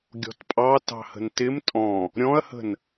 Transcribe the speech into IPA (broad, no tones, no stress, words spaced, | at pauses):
ɡʲɔ̤tpʼɑ tɑ̤hə̤ntɪm tʼɔ̃ | ɾʲɔ̃ɐ̯hə̤n